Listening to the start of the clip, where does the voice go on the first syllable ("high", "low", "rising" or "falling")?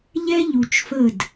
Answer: high